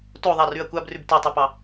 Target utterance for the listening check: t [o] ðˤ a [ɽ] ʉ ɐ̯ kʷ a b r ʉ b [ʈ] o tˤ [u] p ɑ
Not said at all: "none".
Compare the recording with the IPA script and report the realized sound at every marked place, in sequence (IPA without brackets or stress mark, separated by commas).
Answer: o, r, t, ʉ